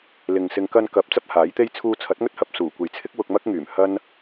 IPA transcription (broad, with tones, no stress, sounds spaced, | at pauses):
l ɪ˨ ŋ s ɪ˧ ŋ k ɐ˧ n k ɐ˨˥ p̚ t͡s ɐ˥ p̚ h aː˨˥ j t̪ e˥ j t͡sʰ uː˧ t͡sʰ ɐ˨˥ t̚ ŋ ɵ˥ t̚ h ɐ˧ p̚ s uː˨˩ kʷ e˨ j t͡sʰ ɪ˥ k̚ w ʊ˧ k̚ m ɐ˥ k̚ ŋ yː˨˩ m h ɐ˥ n